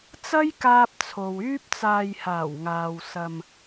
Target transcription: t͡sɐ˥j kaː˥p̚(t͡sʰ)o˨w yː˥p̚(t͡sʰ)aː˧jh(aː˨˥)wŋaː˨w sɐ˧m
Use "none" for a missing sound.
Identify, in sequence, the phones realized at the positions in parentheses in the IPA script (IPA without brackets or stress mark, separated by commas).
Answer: t͡sʰ, t͡s, aː˨˩